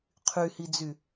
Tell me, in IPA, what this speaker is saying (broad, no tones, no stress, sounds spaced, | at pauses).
qʰ y h i d͡z y